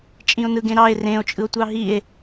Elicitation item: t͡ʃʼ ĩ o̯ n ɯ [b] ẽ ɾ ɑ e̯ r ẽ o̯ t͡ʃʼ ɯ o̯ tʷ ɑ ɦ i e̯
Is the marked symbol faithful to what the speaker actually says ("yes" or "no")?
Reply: no